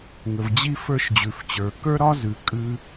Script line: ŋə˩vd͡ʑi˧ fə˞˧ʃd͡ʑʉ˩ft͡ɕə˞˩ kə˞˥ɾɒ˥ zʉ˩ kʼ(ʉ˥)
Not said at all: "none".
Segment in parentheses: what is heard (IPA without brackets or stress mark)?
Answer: ʉ˥